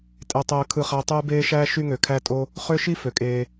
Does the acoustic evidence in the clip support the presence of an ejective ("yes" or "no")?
yes